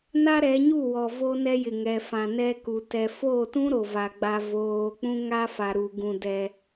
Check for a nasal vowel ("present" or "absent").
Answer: present